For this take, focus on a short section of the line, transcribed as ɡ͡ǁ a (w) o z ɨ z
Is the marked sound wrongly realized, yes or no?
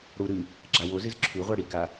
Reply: no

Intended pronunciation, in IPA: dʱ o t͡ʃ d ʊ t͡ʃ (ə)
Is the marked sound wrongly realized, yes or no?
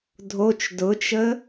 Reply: no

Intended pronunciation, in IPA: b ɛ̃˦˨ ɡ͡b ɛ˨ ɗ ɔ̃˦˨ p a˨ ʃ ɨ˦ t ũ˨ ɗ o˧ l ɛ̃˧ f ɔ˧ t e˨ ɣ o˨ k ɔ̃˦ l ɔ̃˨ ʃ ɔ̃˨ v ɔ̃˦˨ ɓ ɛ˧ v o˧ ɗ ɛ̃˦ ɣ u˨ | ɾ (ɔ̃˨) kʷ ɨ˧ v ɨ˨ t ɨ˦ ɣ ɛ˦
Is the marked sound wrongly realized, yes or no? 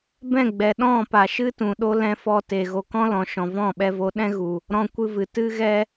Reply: yes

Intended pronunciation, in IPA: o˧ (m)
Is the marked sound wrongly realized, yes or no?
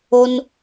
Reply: yes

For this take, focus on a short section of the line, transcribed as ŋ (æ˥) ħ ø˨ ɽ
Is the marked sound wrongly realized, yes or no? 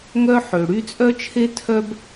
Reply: yes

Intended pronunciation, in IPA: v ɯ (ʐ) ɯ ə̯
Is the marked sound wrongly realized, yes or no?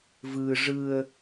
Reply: no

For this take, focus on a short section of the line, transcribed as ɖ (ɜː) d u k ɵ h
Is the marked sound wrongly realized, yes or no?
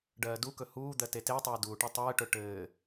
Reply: no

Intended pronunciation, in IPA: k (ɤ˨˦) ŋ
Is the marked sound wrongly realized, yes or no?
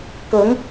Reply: no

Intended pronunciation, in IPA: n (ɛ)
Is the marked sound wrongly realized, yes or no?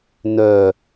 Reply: yes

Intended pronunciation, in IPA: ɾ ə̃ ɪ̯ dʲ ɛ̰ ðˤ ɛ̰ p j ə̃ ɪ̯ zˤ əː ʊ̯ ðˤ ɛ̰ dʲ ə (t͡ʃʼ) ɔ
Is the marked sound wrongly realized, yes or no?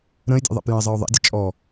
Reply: no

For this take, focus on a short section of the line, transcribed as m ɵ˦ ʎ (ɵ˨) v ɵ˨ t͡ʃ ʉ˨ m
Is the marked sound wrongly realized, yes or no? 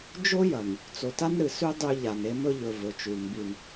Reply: no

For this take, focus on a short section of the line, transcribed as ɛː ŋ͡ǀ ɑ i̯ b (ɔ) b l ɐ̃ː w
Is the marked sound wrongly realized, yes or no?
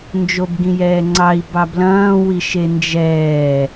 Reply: yes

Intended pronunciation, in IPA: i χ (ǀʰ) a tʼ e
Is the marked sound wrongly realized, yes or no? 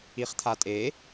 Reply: yes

